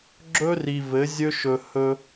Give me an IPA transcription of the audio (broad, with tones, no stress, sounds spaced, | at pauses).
ɡ͡ǁ ɵ˦ r i˨ v ɘ˨˦ zʲ ɵ˦ ʃ ɵ˨ h ɵ˦